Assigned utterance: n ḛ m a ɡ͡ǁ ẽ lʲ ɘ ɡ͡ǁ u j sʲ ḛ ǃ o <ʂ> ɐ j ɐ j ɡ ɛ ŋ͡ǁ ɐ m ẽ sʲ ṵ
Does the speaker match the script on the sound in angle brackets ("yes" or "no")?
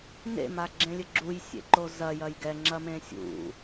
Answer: no